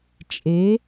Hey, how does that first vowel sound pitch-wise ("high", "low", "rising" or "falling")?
rising